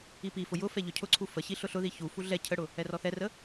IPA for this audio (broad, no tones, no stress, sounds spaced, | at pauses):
i p i f ʊ j ʊ f ɛ ʎ ɔ cʰ ʊ ǀʰ u f ə ɕ i ɬ ʊ ɬ ʊ ð i ç u f u ɮ ɛ cʰ ə ɽ ʊ | ɛ r ɔ θ ɛ r ə